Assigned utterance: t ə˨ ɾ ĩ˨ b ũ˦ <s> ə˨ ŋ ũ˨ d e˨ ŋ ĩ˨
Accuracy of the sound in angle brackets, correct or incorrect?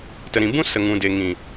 correct